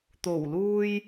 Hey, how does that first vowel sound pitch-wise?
low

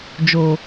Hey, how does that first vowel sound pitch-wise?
low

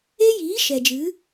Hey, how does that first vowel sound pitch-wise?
high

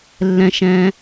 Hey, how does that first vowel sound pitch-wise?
low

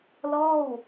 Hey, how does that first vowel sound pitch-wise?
falling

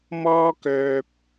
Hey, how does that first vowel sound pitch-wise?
high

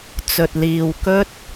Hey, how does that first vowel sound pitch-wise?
low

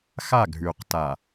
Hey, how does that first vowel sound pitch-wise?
falling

